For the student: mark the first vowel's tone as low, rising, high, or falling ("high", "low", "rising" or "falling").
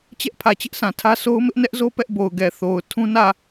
high